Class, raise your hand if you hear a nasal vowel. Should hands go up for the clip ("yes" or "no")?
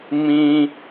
yes